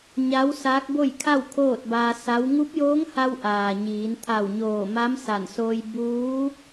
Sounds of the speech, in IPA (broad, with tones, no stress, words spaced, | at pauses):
ɲa˧˥w saː˧˥k̚bo˥˨jkʰa˥˨w kʰoː˥˨t̚baː˧ sa˧˥w ŋu˧˥p̚joː˧˥ŋha˧w ʔaː˩ɲiː˩˧n t̪ʰa˧˩wɲoː˧˩ ma˧˥msa˧˩nsoː˧j buː˧˥